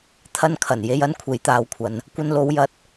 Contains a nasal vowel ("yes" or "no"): no